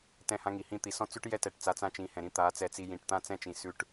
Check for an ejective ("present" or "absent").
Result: absent